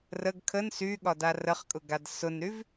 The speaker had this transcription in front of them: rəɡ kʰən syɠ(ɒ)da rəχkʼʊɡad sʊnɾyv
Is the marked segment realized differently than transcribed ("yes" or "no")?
no